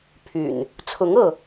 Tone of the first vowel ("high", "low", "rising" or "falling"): low